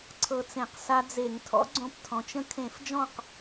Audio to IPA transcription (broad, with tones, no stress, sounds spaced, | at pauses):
ǀʰ ɤ˧ t͡s ẽ˧˩˧ q s a˧ d͡z e˧˩˧ ŋ tʰ ɔ̰˧˥ ɡ͡ǀ õ˧ p tʰ ɔ̃˩˧ t͡ʃ ə̃˧ kʰ ẽ˧˩˧ f d͡ʒ ɔ̃˥˩ q